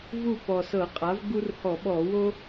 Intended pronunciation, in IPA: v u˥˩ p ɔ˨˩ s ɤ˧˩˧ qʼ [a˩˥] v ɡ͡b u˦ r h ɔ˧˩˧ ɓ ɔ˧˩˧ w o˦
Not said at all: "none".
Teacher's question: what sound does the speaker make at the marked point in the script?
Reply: a˩˥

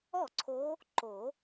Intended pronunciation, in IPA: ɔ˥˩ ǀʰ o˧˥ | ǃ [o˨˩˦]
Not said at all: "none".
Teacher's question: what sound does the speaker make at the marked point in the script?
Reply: o˨˩˦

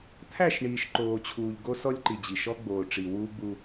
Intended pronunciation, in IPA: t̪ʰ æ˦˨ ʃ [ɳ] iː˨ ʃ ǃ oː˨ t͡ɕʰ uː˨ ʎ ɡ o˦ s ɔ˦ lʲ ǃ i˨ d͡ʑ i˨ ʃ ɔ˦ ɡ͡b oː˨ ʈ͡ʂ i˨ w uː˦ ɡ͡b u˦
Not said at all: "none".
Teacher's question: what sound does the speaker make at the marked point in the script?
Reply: ɳ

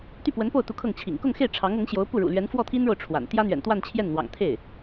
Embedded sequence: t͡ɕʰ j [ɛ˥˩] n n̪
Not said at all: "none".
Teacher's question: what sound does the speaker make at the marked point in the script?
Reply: ɛ˥˩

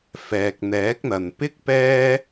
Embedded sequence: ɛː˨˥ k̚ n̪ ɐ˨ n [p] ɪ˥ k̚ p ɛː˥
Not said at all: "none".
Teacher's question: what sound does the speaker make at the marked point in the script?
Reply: p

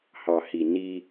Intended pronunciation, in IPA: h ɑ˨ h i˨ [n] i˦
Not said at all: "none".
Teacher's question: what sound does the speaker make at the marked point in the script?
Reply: n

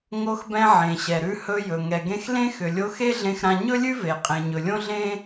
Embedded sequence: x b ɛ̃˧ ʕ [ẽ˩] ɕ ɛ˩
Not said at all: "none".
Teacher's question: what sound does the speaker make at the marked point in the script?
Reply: ẽ˩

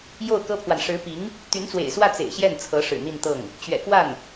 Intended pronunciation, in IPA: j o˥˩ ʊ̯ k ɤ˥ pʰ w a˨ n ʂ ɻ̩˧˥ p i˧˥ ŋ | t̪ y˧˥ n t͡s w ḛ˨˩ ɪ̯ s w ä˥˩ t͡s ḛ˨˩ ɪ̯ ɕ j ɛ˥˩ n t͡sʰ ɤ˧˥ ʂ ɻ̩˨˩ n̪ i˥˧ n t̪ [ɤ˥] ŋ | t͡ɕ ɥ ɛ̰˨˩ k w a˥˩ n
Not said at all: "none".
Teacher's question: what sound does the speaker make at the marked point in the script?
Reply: ɤ˥˩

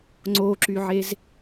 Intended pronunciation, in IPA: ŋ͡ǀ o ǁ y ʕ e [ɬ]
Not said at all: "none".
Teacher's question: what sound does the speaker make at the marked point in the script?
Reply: z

